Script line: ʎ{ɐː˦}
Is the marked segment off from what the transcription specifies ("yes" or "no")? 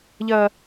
no